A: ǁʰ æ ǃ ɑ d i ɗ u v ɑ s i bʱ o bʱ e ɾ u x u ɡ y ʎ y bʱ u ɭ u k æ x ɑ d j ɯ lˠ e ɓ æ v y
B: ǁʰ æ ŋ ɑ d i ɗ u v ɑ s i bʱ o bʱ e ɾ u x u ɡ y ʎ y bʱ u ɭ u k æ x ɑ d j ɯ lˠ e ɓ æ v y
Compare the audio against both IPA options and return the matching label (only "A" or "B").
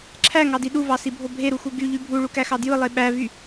B